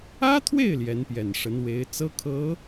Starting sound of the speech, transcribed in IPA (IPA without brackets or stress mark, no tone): ä